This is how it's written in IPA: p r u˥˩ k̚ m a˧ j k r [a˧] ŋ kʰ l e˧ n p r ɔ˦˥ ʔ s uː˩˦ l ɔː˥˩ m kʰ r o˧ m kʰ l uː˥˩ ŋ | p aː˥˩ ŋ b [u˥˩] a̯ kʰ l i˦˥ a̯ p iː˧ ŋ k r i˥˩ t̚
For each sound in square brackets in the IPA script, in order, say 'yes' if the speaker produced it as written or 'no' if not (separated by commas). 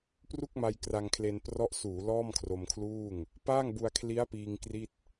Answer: yes, no